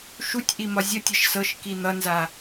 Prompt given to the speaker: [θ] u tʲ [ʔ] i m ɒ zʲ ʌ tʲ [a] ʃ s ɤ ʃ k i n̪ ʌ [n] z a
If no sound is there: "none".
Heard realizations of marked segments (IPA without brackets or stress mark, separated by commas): ʃ, ʔ, ʌ, n